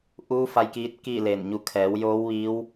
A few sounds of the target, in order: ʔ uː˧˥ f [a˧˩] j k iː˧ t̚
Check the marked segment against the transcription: incorrect: a˧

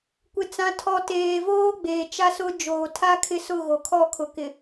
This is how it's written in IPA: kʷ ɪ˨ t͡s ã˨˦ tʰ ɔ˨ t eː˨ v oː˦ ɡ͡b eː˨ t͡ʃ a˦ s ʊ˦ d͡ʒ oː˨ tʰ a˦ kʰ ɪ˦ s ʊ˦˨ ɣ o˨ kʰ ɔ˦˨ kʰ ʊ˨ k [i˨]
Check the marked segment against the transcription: incorrect: ɪ˨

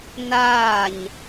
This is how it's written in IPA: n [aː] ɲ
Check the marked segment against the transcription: correct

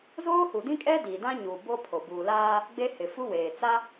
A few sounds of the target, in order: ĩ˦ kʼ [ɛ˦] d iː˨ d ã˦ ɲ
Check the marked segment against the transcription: correct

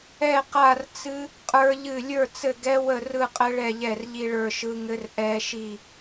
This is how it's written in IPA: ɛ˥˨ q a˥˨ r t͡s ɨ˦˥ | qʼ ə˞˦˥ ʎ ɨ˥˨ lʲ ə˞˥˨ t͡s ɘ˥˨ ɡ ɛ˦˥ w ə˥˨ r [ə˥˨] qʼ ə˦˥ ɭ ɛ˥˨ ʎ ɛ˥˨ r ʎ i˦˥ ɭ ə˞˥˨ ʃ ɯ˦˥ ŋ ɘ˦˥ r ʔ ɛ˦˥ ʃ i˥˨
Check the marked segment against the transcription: incorrect: ɯ˥˨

